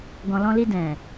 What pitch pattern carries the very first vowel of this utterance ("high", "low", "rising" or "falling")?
low